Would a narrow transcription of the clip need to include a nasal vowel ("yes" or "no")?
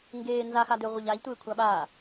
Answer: no